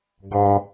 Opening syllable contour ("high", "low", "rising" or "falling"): low